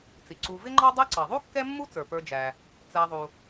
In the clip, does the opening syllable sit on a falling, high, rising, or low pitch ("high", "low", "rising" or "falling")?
low